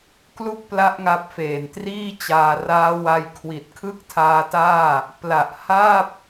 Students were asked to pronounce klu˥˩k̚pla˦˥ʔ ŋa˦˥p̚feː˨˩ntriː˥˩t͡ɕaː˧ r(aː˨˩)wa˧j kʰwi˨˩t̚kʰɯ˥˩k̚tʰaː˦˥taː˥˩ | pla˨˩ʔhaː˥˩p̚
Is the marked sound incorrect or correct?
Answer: incorrect